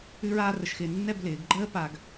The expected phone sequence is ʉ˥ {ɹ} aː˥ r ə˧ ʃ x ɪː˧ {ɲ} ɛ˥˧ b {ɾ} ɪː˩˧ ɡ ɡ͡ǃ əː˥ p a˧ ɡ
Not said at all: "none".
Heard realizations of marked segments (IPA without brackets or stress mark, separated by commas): ɹ, nː, l